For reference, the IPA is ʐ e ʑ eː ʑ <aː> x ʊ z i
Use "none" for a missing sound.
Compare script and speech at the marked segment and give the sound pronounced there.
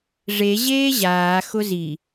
aː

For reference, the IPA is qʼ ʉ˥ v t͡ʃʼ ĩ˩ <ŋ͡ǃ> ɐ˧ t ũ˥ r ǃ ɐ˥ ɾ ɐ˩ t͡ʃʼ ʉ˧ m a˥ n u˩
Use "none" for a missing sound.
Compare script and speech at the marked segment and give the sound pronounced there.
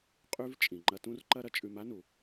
ŋ͡ǃ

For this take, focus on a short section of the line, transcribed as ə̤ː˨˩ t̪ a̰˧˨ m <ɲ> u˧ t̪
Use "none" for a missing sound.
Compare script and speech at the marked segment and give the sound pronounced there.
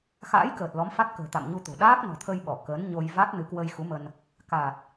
ɲ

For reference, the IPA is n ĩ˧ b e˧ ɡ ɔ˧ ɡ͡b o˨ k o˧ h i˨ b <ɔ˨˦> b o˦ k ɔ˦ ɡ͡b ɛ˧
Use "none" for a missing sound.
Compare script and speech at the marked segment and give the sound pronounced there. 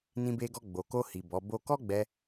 ɔ˨˦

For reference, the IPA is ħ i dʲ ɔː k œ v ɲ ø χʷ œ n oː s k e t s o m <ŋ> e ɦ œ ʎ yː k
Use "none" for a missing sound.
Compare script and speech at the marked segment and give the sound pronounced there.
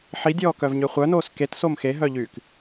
x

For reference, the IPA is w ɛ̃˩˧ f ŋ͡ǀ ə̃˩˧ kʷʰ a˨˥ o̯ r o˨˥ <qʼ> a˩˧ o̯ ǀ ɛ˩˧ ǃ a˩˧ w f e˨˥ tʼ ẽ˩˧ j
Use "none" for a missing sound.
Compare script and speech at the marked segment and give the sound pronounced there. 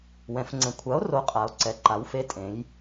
qʼ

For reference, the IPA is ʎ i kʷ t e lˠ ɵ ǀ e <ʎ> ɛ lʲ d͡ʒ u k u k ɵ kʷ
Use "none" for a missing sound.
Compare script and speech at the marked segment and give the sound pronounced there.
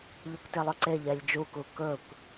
ʎ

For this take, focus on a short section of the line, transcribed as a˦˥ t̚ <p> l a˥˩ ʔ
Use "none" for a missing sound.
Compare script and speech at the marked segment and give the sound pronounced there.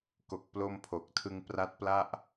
p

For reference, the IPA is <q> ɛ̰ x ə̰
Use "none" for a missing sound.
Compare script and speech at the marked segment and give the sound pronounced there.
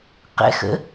q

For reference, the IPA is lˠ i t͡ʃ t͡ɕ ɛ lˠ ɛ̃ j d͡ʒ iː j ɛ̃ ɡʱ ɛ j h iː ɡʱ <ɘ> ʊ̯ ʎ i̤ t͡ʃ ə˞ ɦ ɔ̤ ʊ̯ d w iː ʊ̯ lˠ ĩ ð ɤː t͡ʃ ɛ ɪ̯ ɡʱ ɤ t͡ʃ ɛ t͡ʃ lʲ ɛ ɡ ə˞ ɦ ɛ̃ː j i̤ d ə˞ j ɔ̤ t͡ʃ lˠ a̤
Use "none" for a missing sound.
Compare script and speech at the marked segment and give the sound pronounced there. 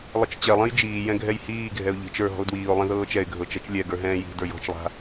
ɛ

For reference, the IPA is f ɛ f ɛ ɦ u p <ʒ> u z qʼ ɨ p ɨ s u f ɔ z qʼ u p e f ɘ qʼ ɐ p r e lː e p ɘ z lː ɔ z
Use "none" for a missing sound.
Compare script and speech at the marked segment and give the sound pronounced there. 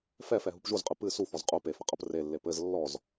ʒ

